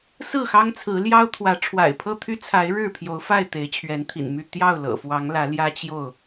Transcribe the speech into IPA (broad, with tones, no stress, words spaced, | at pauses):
sɹ̩˥˨xɑ˦ŋt͡sʰɹ̩˨˦ ljɑ˦ʊ̯t̪ʰwä˨˦ ʈ͡ʂʰwa̰˨˩ɪ̯pʰɤ˥˨t̪ʰy˦t͡sʰa˨˦ɪ̯ ɻɻ̩˥˨pʰjo˨˦ʊ̯fa˥˨ɪ̯ t̪e˨˦ɪ̯t͡ɕʰɥɛ˨˦nt̪ʰḭ˨˩nmy˥˨ t̪jɑ˥˨ʊ̯lɤ̰˨˩fwɑ˨˦ŋ lä˨˦ljä˦t͡ɕjo˥˨ʊ̯